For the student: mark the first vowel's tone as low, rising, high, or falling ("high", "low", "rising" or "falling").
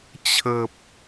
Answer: low